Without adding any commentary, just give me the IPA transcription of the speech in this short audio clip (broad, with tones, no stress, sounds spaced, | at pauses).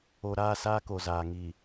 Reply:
o˨ ɾ aː˦˨ s aː˦ k o˨ z aː˨ ŋ iː˨